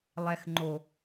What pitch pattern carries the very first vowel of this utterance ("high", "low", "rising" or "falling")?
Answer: low